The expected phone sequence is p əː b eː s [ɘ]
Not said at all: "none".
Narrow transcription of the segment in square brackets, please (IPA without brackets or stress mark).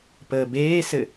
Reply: ɘ